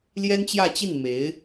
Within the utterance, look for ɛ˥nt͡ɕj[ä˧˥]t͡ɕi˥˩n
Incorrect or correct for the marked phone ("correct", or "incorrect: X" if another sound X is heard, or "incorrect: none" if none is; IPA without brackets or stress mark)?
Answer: incorrect: ä˥˧